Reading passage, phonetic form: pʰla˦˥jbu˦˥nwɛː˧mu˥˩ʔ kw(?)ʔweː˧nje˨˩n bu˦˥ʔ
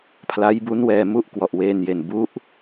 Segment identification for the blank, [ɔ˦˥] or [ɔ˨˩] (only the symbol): ɔ˨˩